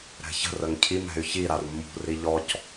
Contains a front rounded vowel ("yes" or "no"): yes